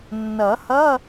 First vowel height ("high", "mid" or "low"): mid